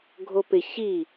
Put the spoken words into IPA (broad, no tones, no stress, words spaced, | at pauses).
ɡʱopɪ çi